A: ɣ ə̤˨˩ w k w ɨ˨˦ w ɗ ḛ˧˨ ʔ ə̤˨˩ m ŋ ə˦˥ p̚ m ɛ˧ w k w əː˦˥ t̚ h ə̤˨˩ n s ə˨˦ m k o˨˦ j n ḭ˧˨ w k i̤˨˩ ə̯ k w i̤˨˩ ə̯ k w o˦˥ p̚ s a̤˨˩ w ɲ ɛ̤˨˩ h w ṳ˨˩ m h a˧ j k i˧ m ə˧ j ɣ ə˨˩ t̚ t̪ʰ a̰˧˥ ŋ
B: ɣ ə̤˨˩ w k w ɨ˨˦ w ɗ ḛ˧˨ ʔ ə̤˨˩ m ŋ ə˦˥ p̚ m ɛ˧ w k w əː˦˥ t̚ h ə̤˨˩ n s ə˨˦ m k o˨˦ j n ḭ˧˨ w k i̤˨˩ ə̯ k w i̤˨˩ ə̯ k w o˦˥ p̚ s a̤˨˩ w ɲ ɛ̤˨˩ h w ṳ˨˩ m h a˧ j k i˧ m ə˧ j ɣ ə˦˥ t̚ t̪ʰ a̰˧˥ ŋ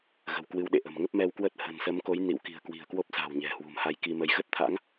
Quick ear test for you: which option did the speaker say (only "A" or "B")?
B